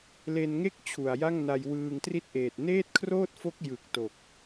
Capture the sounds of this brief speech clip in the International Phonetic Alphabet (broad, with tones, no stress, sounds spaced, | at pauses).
l e˧ n ŋ e˥˩ k̚ t͡ɕʰ u˨˩ a̯ j a˥˩ ŋ n a˧ j w ɯː˧ ŋ t r i˦˥ t̚ ʔ eː˨˩ t̚ n eː˥˩ t̚ kʰ r oː˥˩ t̚ f o˦˥ k̚ j ɯ˨˩ k̚ t o˨˩ k̚